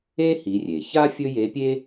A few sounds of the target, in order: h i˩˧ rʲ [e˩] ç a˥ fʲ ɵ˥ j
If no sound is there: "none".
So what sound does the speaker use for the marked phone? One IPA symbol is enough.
e˩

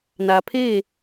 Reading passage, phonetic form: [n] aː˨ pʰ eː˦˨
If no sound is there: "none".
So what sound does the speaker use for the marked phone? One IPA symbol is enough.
n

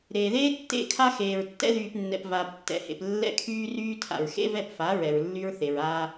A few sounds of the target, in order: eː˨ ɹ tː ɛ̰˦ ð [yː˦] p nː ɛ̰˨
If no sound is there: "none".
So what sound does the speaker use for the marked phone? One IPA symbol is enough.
yː˨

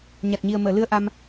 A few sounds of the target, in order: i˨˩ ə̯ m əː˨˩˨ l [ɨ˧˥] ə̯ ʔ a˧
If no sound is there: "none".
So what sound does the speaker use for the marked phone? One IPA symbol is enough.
ɨ˧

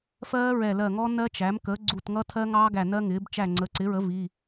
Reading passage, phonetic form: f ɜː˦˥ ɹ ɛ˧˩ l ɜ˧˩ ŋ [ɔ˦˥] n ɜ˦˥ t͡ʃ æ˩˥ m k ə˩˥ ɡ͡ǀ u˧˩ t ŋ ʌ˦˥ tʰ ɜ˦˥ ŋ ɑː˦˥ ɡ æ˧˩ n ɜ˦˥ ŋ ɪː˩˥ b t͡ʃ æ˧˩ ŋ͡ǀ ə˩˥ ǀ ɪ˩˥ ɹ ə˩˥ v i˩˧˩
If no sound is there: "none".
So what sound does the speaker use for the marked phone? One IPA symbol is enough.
ɔ˦˥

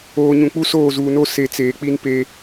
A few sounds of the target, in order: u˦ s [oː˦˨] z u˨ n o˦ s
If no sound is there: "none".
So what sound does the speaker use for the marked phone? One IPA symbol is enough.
oː˦˨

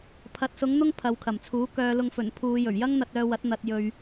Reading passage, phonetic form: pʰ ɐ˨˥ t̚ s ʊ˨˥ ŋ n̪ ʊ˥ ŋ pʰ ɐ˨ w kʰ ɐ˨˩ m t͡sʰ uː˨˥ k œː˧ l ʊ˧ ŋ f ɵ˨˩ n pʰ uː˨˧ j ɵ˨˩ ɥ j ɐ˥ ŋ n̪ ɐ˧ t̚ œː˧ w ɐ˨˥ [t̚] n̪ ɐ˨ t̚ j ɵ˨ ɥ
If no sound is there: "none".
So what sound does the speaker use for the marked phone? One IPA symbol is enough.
t̚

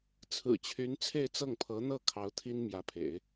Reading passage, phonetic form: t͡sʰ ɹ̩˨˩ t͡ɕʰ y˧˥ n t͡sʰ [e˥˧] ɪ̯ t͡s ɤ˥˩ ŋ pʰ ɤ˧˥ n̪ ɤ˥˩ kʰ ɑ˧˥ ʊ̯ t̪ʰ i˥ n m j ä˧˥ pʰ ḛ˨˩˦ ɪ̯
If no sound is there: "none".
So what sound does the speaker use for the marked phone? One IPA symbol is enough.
e˥˧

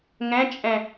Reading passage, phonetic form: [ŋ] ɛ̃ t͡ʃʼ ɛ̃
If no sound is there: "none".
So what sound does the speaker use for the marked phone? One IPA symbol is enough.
ŋ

